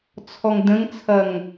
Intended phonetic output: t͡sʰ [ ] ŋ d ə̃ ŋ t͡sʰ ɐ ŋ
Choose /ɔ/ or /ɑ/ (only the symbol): ɔ